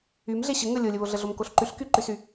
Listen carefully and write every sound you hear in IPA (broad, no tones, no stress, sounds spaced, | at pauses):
y m ɮ e ɕ ə ŋ ə lʲ o lʲ ə β o ɮ ə ɮ o m k o ɬ ǃ y ɬ k y ǃ y s y